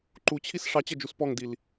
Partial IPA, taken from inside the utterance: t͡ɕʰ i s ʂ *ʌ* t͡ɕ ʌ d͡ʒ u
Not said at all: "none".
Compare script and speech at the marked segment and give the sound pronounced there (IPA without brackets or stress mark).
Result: ɑ